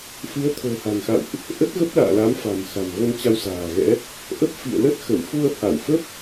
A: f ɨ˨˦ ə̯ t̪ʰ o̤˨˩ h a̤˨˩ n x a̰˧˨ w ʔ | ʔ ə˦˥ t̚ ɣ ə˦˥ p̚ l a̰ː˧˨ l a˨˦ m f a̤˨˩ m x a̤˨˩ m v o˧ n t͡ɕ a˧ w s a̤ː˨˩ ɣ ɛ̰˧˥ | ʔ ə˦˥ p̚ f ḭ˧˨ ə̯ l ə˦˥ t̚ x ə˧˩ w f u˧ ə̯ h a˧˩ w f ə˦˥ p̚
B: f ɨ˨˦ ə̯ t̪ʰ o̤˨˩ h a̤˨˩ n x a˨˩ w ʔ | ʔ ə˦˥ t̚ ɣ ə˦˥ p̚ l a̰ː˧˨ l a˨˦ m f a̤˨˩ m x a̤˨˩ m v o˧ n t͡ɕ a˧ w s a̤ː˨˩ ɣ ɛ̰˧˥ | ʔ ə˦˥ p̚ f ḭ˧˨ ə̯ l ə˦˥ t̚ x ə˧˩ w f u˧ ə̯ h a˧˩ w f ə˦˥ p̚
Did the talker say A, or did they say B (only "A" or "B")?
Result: A